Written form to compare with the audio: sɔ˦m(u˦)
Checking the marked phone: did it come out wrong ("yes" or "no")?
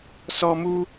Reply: no